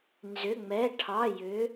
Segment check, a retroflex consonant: present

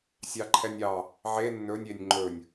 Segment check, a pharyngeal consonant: present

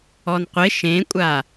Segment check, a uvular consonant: present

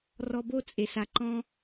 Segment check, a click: present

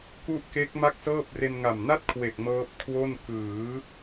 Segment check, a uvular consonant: absent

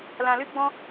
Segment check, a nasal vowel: present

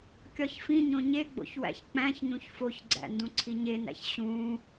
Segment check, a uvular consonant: absent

